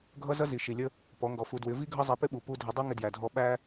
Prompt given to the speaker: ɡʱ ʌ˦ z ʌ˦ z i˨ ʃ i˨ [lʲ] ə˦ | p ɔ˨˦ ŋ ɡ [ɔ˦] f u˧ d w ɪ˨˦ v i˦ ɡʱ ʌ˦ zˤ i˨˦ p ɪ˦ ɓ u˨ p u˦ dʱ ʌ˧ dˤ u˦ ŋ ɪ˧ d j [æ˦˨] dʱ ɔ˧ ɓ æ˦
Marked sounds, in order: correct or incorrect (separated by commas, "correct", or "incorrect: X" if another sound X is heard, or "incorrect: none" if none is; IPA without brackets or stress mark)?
correct, incorrect: ɔ˨, incorrect: æ˨